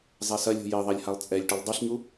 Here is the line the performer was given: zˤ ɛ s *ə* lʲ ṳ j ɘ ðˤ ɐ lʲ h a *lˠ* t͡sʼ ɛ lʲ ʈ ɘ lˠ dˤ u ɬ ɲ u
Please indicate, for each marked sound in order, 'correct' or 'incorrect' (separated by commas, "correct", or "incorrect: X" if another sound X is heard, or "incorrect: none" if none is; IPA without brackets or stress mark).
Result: incorrect: ɐ, correct